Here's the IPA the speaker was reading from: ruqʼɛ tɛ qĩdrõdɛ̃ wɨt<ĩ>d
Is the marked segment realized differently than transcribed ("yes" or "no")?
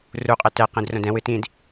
no